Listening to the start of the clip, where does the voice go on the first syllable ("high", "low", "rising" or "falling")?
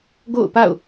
falling